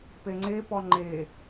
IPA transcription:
p e ŋ͡ǀ e p ɔ ŋ͡ǃ e

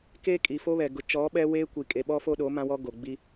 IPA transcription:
k eː˦ kʼ i˨ f o˦ β ɛ˨ ɡ ʊ˨ t͡ʃ ɔ˨˦ ɓ ɛ˦ w eː˦ kʷ i˨ kʼ e˨ ɓ ɔ˦ f o˦ ɗ o˨˦ m ã˦ w ɔ˦ ɡ o˨ ɡ͡b i˦

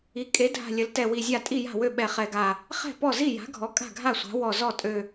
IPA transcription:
i˩˥ kʼ e˩˥ dʱ a̤˧˩ lʲ ə˩˥ l t ɛ˧˩ w i˧˩ zʲ a˥˩ tʼ i˥˩ j a̤˥˩ w ø˥˩ ɓ ɛ˧˩ χ ɛ˧˩ ɡ a˧˩ | χ ɛ̤˥˩ p ɔ˥˩ z i˥˩ j a̤˩˥ ɡʱ ɔ˩˥ kʼ a̤˥˩ ɡʱ a˥˩ sʷ a̤˩˥ w ɔ˧˩ z ɔ˥˩ tʼ ø˧˩

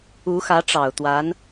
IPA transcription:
u˧˥ x ä˧˥ ʈ͡ʂ ɑ˨˩ ʊ̯ t̪ w a˧˥ n

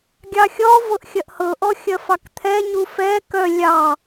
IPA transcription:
ɡʲ ɑ xʲ ɔ v ɤ ʔ xʲ ɐ ʔ h ɤ ʔ ɔ xʲ ɐ f ɑ k t̪ʰ ɛ ɲ u f ɛ k œ lʲ ɑ

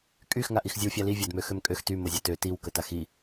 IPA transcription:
kʼ y x ŋ a ʔ i x zʲ ə w fʲ a l i vʲ a d m ø x ø m kʼ ø x t y m o zʲ a t ø t i w k ə t a x i

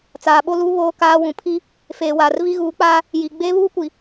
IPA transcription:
t͡s aː˨ ɓ o˦ l u˦ β oː˦ k aː˦ w ũ˨ pʰ i˦ | f eː˨ w aː˨ r v i˦ ɣ uː˨˦ k͡p aː˦ | j i˨ ɡ͡b eː˦ β uː˦ kʷ i˨

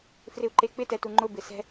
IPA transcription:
f r ɪ u̯ ǃ e k͡p ɪ t ɛ t u ŋ͡ǃ ʊ b ɪ s ɛ̤

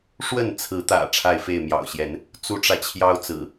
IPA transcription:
ʂ w ə˥˨ n t͡sʰ ɹ̩˨˦ t̪ ä̰˨˩ ʈ͡ʂʰ a˥˨ ɪ̯ f e˥˨ ɪ̯ m j ɑ̰˨˩ ʊ̯ ɕ j ɛ˨˦ n | t͡s u˦ ʈ͡ʂ ä˨ t͡ɕʰ j ɑ˦ ʊ̯ t͡s ɹ̩˨˩

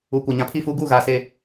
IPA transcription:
uː˨ kʷ a˨ ɲ ã˨˦ pʰ i˦˨ f uː˦ ɡ uː˦˨ ɣ aː˨ s eː˨

